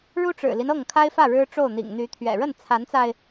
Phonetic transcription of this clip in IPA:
ɻu˥ʈ͡ʂɻ̩˨˩li˦n ɤ˥˩ŋkʰa˥ɪ̯fä˥˩ ɻɻ̩˥ʈ͡ʂo˥˩ʊ̯n̪ḭ˨˩ŋ n̪y˧˥t̪ʰɥɛ̰˨˩ ɻə˥˩nt͡sʰa˧˥nt͡sa˧ɪ̯

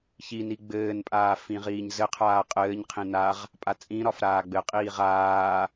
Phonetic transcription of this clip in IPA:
çini ɡ͡bɘːnpʼaː fĩʁiːɲzɘqʰaː qʼɘːɲqʰĩ naʁ | pʼat͡sʼĩɾɒf ɾaːɡ͡bɘqʼiːʁ aː

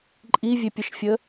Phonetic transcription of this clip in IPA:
ǃʼivʲepʲəʃfʲə

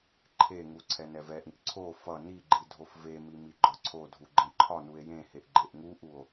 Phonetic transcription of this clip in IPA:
ǃʰeŋu ǀʰɛnɛvɛʔĩʔ ǀʰo fʌ niɡ͡ǃi dʱofvemi miɡ͡ǃɒǀʰodʱu ɡ͡ǃẽǃʰɒnue̯ jẽheʔ ɡ͡ǃeʔŋuʔuo̯

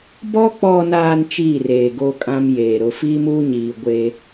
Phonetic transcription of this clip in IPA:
bɔ˦ k͡pɔ˨naː˨n t͡ʃiː˦˨reː˨ ɡo˦kʼã˦mjeː˨ ɾʊ˨fiː˦muː˦ɲiː˨ ɡʷeː˦

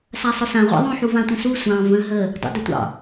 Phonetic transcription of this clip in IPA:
sasˤʊsã ʁʷa̰ðˤõ ħuvãtʷə̃su sʷɑ̃ və̃ ɦə | dˤṵdətʷɑ̰

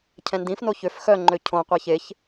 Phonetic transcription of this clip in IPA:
cʰɛ̃ndĩfno çøf xœŋ͡ǃø cʰõ qʷaçeç

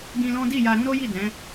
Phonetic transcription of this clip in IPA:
ɡĩ˧lɔ̃˦ di˦˨ja˧ ɾũ˦ɾo˦ji˦˨dɛ̃˨˦

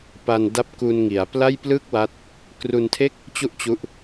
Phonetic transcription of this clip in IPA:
pa˧nda˦˥p̚ku˧n ŋi˩˦a̯pla˥˩j plɯ˥˩k̚wa˦˥t̚ | kru˧ntʰe˥˩k̚ | t͡ɕu˥˩ʔt͡ɕu˦˥ʔ

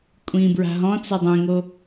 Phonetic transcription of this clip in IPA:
kʷʼĩ bɹa̤ɦɔ̃ t͡sɛdˤẽŋo

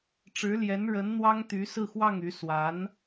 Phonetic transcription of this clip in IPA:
ʈ͡ʂɻ̩˧˥ljɛ˧˥nɻə˧˥n n̪wɑ˥ŋt̪y˧˥ sɹ̩˥˧xwɑ˥˩ŋy˧˥ swa˧˥n

